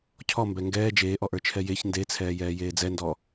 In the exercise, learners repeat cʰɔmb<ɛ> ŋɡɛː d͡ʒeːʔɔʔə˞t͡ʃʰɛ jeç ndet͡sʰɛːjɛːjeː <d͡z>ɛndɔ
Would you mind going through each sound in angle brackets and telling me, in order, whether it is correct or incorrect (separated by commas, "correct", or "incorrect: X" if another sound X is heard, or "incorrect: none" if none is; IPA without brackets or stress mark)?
correct, correct